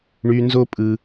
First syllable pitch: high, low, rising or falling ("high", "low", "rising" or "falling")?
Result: high